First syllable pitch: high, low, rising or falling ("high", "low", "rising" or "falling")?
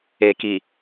low